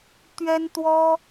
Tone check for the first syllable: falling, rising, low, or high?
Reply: high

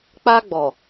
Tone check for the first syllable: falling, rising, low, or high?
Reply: high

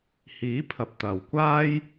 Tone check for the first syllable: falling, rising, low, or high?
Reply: rising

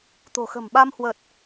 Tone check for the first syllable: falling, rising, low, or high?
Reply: low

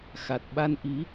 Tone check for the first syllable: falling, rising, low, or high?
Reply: low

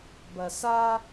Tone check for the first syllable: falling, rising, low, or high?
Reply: low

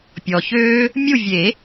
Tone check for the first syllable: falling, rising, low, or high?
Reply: low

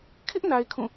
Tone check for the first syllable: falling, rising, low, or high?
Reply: high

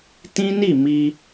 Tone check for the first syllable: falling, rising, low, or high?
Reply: high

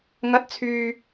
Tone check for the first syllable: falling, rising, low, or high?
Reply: rising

